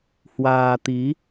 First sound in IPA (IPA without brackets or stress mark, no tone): h